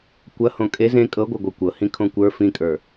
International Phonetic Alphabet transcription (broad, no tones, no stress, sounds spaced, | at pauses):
kʷ ɐ h õ kʼ e z ẽ kʼ ɤ ɡʷ ə˞ ɡʷ ɤ kʷ ɤ h ĩ kʰ õ kʷ ə˞ f ĩ kʼ ə˞